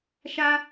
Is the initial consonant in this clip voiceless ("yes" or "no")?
yes